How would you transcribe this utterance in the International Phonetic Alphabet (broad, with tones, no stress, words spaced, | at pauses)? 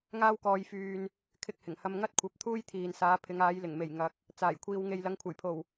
ŋaː˥wkɔː˧jfyː˧n | kʰɪ˧k̚hɪ˨˩ŋ hɐ˧mŋɐ˥t̚kʷʰɐ˨˥p̚ t̪ʰuː˥jt̪ʰiː˨nsaː˨˧pʰɪ˨˧ŋ aː˨˧jlɪ˨˩ŋme˨˩j ŋɐ˨k̚ | t͡saː˨˩jkʷʰiː˨wŋe˨j lɐ˨˧ŋkʷʰɐ˨˩jpʰo˨˩w